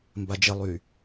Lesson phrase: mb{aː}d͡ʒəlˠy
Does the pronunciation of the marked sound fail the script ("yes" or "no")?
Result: yes